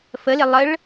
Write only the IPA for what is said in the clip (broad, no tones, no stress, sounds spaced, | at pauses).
f ə l ɪ lˠ ə ɭ